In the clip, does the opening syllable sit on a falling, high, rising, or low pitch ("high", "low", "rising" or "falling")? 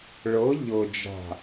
rising